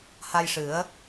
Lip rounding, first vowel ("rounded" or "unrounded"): unrounded